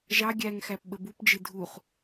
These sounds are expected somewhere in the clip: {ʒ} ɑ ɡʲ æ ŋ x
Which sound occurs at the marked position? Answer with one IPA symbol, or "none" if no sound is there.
ʒ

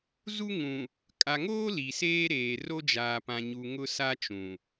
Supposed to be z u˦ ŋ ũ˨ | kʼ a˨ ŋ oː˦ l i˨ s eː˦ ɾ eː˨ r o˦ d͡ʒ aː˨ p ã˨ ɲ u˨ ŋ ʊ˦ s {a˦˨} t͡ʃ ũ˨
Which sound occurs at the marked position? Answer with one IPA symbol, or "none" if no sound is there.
a˦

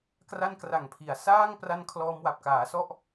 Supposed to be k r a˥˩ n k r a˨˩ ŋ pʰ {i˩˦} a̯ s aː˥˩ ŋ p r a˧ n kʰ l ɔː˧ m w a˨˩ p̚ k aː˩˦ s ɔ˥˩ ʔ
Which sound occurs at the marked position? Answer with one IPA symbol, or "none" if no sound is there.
i˩˦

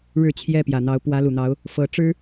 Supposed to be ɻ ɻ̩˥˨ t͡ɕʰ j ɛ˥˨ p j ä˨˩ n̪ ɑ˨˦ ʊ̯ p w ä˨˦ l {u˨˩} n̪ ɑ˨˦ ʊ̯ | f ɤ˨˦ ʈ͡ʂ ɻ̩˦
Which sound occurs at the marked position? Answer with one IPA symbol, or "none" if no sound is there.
u˨˩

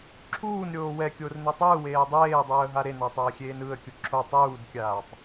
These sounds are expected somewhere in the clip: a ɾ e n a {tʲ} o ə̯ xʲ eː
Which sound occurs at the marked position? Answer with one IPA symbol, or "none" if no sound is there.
tˤ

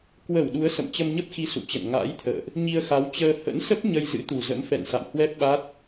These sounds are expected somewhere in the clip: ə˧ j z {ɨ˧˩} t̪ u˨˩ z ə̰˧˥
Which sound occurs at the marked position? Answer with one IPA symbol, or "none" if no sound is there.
ɨ̰˧˥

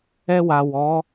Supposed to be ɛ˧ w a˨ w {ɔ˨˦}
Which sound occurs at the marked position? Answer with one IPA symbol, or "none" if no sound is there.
ɔ˨˦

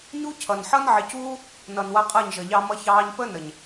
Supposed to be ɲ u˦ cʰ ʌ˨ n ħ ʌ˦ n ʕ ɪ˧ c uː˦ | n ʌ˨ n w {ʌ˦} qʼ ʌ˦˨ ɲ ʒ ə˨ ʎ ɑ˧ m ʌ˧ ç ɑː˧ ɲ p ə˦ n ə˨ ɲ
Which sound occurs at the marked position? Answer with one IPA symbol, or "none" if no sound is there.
ʌ˧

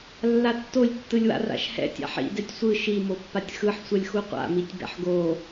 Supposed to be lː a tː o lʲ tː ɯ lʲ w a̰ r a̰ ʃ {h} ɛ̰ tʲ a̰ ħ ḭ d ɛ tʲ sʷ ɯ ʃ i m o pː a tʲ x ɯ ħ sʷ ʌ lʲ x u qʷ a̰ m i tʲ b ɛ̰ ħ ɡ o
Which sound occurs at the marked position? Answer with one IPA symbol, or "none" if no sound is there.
h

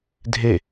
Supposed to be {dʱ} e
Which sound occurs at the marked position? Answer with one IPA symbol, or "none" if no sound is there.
dʱ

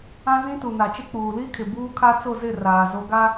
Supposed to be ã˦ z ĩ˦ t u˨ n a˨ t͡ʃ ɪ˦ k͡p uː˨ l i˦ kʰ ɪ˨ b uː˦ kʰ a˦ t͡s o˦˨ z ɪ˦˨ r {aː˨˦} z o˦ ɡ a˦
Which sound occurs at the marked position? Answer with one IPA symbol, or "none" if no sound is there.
aː˨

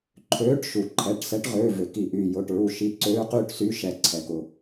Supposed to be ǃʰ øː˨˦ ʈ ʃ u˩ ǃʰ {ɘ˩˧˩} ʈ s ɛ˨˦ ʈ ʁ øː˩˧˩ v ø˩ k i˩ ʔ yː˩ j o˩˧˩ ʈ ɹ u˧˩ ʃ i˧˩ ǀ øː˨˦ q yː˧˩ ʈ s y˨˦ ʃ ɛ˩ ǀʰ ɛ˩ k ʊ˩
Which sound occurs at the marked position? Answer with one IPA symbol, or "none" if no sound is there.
ɛ˩˧˩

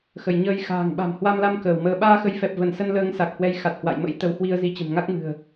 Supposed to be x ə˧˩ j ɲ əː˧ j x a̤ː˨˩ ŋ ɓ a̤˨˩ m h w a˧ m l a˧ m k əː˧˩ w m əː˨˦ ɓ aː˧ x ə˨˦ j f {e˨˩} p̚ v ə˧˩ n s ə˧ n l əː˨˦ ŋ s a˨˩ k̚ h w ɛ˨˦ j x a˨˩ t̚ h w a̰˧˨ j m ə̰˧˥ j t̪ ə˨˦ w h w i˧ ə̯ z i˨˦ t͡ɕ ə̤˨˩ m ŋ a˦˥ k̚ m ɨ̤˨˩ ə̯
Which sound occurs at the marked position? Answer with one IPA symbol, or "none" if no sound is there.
ɛ˨˩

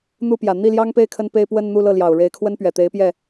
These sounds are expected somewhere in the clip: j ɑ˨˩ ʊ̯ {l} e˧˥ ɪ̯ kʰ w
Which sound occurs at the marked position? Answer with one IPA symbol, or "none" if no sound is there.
ɻ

